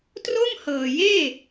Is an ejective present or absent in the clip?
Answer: absent